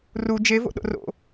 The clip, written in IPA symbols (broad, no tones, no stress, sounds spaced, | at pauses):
r u d͡ʒ e v o̰ ɗ o̰ r o̰